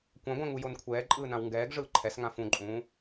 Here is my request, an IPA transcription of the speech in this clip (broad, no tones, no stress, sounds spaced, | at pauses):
kʷ ã ɡʷ ɛ̃ ŋ u j o n kʷʰ ɛː ǃʼ ɯː n ã w ŋ ɡ ɛː ɡ ʐ ɯː ǃʰ ɛ s ŋ ã f ũ ǃʼ ũː